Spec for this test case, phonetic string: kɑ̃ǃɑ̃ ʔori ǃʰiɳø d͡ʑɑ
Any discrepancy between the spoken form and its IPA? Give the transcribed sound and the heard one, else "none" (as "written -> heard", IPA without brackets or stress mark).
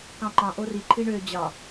none